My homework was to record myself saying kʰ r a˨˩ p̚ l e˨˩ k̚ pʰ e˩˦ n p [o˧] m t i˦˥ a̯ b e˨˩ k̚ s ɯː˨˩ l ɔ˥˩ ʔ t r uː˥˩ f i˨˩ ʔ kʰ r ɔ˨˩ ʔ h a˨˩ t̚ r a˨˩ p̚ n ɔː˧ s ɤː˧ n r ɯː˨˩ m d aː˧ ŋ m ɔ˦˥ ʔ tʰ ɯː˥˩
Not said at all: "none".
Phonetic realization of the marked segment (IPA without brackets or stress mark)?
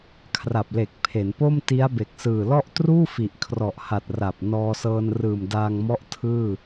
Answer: o˥˩